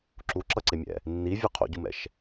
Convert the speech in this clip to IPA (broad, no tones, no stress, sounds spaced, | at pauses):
ǁ u ǁ ʌ ǀ e mʲ ɛ̰ | nː i vʲ u qʰ o̰ ɟ u m ɛ̰ ʃ